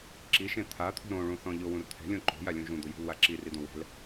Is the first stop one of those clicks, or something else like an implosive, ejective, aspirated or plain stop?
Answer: click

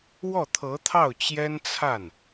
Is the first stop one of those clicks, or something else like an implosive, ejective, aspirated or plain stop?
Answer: aspirated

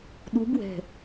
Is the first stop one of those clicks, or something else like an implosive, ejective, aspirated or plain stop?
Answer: implosive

